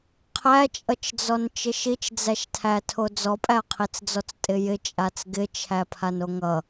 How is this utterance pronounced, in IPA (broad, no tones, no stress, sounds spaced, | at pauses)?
qʰ æ t͡ʃʼ ʌ t͡ʃ d͡z ɔ n t͡ʃ ɪ ʃ i t͡ʃ d͡z æ ʃ tʰ æ tʰ o d͡z ɔ pʼ æ ɐ̯ qʰ i t͡s d͡z ɔ t͡s tʼ ɪ j ɪ t͡ʃʼ a t͡s ɡ ɪ t͡ʃʰ æ pʰ a n o ŋ ʌ